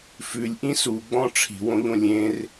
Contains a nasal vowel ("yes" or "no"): yes